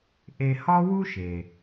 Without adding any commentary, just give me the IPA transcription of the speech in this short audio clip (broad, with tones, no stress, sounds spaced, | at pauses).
ʔ e˧ h ɒ˥ w u˥ ʃ e˩